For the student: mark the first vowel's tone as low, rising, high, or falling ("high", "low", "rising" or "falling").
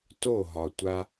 falling